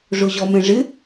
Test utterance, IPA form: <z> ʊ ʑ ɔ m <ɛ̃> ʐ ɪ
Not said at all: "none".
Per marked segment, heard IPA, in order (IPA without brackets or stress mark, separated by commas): ʐ, ɛ̃